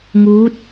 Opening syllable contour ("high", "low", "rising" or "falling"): rising